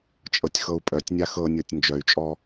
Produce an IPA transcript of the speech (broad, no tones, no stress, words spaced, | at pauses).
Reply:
t͡ʃʼɤtʲxɤu̯pʼœtʲnʲa xɤnʲɤtʲ nd͡ʒœy̯t͡ʃʼɔ